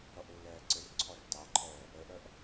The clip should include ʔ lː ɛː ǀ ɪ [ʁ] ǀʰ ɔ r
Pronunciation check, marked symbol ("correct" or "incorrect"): incorrect